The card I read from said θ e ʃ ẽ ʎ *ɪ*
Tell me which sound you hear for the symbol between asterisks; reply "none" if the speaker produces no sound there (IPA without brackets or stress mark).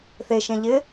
ɪ